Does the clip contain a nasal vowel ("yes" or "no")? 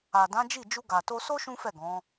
yes